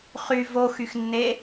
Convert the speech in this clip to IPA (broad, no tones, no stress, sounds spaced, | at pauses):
χ y v o x y x nː e